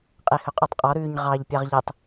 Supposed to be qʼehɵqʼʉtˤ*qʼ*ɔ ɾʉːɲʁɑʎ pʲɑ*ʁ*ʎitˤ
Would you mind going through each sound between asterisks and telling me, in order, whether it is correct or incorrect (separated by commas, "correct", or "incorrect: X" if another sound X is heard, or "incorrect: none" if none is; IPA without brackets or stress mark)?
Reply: correct, correct